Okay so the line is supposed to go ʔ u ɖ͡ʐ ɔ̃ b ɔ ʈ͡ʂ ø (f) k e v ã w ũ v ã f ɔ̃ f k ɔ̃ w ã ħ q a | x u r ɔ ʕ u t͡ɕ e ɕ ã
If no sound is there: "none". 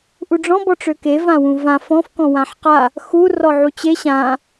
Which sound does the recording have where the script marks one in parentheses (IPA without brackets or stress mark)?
none